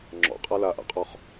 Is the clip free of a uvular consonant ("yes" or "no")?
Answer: no